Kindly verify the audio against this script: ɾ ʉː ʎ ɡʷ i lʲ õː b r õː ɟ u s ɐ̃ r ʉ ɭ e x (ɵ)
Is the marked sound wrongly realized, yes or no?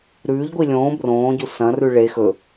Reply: no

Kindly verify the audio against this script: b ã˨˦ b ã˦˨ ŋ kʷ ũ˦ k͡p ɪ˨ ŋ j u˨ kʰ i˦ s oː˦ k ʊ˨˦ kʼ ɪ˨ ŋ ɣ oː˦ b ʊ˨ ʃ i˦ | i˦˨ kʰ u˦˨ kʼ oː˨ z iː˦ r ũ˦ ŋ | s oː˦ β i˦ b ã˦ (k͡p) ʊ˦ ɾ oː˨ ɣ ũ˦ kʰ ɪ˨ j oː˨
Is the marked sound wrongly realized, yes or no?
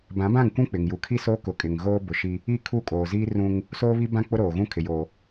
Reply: no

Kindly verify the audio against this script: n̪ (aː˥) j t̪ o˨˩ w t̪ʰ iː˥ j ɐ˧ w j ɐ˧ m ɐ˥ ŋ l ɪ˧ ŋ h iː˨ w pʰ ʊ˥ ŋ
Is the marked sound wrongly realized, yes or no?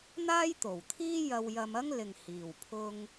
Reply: no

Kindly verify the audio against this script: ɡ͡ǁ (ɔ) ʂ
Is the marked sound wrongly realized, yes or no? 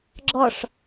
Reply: no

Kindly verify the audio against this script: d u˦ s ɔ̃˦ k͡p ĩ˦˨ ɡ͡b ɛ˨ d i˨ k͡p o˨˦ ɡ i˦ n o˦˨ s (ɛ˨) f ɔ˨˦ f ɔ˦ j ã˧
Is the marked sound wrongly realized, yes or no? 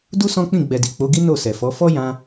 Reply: no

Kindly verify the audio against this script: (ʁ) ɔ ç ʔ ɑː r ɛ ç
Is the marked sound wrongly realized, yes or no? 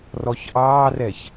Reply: yes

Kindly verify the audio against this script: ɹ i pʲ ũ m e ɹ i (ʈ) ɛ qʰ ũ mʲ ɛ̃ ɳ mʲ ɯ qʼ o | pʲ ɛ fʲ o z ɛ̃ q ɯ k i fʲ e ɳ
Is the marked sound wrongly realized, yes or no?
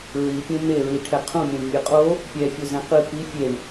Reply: yes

